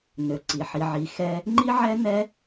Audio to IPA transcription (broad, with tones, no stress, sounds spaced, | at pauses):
n ø˨ ǀ i˨ ħ i˧ ʕ i˧ x ɛ˧ | ŋ͡ǃ i˦ ʕ ɛ˦ n ɛ˦